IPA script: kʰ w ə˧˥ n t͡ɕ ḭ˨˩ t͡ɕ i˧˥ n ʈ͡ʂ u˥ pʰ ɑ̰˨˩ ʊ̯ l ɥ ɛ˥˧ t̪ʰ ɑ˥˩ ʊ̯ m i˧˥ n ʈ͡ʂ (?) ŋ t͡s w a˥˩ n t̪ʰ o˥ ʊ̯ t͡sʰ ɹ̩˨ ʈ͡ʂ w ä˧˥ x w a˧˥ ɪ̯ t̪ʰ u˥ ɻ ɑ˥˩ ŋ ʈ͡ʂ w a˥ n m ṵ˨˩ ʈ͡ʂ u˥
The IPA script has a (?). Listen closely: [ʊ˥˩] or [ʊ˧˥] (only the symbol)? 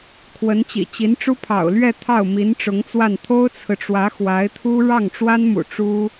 ʊ˧˥